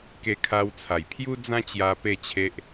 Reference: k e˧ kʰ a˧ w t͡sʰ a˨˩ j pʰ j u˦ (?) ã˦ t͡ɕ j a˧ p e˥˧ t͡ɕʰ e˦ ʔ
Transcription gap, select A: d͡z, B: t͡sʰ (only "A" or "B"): A